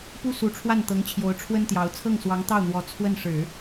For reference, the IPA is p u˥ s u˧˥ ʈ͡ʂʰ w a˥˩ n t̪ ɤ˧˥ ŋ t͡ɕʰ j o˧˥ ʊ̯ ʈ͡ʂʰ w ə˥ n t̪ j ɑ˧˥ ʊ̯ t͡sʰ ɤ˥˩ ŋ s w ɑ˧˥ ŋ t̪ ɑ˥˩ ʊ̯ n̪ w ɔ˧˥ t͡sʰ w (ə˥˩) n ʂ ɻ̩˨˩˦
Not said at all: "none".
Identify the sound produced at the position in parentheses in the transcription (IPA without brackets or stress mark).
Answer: ə˥˩